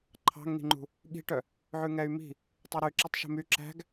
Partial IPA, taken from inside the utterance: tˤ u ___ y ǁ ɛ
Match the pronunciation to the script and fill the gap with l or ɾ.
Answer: ɾ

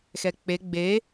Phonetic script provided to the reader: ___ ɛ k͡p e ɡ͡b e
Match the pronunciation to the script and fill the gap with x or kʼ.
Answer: x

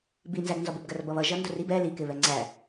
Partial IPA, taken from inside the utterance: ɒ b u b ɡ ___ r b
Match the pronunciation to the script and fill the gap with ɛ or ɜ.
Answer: ɜ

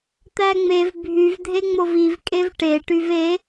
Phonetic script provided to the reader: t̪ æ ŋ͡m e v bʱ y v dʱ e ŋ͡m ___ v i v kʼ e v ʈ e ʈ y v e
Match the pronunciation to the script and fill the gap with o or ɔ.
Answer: o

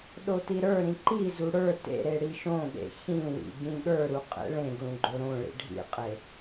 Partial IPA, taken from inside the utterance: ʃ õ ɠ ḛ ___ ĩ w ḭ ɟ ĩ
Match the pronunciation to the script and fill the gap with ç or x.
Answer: ç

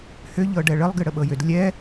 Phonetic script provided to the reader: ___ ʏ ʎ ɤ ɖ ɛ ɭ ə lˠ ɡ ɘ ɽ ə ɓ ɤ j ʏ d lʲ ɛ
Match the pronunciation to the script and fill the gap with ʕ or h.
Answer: h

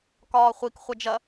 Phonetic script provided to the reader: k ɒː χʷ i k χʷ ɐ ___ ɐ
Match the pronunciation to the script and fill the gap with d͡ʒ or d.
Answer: d͡ʒ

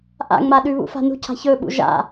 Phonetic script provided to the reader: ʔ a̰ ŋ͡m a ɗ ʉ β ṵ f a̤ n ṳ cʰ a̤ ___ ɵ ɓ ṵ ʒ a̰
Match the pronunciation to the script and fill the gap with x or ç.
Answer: ç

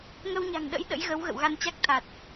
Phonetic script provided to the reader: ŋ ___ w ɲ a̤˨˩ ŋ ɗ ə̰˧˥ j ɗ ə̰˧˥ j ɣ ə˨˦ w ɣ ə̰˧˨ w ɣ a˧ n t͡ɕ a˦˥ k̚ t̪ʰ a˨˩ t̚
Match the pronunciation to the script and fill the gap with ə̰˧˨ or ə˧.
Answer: ə˧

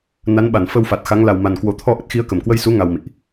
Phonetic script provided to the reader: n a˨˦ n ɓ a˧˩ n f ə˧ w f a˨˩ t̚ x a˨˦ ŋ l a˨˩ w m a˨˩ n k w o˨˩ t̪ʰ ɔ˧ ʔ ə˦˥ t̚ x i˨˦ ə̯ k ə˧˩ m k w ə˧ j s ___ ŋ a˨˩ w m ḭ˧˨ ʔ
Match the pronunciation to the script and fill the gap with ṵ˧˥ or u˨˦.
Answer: u˨˦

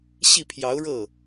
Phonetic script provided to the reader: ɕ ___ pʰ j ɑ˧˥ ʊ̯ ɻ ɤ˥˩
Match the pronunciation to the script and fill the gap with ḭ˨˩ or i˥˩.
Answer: i˥˩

